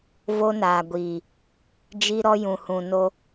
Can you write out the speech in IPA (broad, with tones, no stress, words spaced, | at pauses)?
vo˦naː˨ ɡʷiː˨ | d͡ʒi˦ɾɔ˦jũ˨ hũ˨no˦